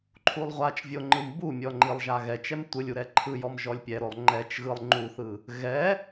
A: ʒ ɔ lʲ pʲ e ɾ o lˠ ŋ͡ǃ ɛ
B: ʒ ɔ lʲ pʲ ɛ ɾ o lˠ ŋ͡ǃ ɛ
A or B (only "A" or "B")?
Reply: B